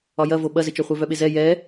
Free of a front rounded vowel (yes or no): no